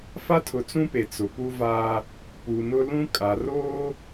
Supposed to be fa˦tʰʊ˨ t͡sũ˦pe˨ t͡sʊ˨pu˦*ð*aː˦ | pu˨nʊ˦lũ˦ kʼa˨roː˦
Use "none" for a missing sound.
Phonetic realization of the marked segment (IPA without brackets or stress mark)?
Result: v